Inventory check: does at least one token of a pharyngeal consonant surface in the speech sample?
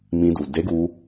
no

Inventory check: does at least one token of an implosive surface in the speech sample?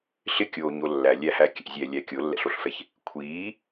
no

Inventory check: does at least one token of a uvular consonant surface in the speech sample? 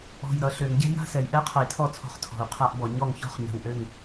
yes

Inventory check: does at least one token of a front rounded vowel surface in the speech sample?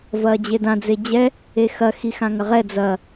no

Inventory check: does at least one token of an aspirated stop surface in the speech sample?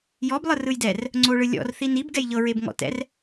no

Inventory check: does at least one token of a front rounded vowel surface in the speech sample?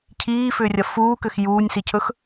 yes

